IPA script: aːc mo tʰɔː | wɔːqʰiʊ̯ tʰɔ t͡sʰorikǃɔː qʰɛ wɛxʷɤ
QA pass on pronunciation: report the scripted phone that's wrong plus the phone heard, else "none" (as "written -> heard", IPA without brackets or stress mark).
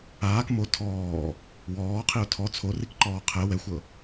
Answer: c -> k